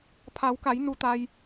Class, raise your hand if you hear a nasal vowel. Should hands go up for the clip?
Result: no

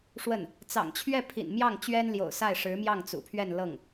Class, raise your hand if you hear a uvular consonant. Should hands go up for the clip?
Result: no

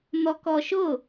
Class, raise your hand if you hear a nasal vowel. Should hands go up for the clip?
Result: no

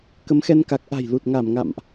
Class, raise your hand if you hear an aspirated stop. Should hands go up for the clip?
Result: no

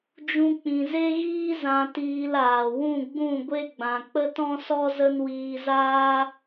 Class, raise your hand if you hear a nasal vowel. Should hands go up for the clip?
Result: yes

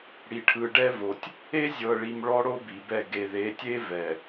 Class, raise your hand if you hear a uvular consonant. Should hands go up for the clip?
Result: no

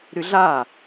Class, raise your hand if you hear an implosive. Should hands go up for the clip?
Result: no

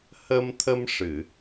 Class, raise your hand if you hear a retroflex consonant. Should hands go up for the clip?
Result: yes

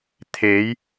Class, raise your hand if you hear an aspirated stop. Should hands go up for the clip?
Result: yes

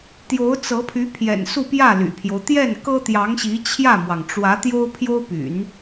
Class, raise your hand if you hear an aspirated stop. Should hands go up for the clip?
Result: yes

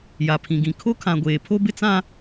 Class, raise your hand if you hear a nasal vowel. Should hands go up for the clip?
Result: yes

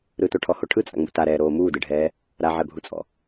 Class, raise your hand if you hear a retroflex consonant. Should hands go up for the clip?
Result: yes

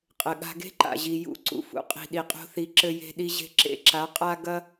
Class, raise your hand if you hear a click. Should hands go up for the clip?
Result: yes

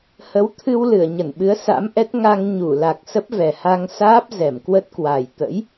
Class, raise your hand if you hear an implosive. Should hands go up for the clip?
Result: yes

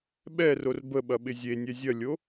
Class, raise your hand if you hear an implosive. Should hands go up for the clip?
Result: yes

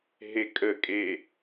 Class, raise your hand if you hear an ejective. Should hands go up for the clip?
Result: yes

